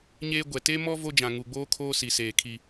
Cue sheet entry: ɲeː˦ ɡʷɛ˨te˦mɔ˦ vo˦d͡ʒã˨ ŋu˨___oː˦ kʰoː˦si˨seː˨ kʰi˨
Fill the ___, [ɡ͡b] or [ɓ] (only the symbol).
ɡ͡b